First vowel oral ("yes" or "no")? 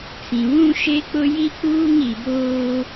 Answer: no